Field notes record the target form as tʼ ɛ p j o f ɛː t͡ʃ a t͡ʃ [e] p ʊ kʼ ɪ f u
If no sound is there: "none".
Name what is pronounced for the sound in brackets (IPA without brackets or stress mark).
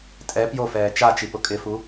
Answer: i